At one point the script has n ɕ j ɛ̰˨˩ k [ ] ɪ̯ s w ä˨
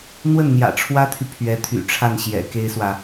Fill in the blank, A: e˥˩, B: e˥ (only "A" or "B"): B